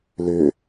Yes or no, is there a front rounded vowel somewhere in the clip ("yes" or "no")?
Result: yes